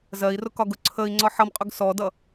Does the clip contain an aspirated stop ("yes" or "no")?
yes